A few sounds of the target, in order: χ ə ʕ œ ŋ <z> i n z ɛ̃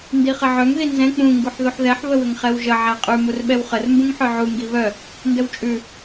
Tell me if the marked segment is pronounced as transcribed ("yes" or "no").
no